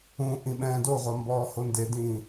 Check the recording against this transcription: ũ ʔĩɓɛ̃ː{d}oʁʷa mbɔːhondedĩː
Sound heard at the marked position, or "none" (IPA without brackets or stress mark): d